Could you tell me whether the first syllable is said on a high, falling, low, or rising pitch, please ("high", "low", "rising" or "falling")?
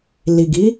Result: low